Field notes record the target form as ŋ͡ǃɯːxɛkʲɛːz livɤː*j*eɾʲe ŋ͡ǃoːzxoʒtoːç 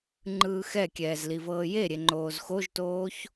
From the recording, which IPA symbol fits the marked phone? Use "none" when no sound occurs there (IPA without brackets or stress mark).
j